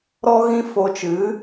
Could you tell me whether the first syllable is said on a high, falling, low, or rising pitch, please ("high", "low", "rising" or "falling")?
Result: high